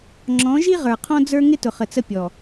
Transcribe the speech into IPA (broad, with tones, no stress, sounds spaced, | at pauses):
ŋ͡ǁ ɔ̃˨˦ ʒ i˦ ʁ ə˞˨ qʰ ɔ̃˦ d͡z ə˞˦ ŋ ɪ˦ t ʊ˨ χ ə˨ t͡s ə˦ pʲ ɔ˨